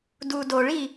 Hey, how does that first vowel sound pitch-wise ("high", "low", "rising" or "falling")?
low